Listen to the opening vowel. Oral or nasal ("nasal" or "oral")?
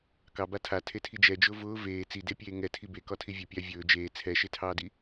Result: oral